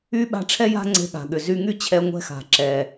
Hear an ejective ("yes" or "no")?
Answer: no